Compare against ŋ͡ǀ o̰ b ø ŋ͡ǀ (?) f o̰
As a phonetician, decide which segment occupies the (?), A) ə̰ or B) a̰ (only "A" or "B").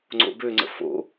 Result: A